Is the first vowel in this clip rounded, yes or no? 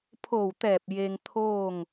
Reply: yes